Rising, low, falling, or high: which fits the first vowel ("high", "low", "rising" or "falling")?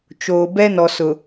low